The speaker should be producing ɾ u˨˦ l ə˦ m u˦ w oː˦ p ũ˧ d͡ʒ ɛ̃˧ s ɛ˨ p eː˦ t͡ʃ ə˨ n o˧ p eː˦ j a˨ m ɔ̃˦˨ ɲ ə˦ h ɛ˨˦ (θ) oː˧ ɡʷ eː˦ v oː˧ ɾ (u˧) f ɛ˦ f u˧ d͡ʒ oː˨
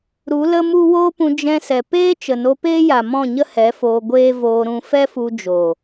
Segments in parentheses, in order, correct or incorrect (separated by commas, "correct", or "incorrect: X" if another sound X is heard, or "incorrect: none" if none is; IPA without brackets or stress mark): incorrect: f, incorrect: ũ˧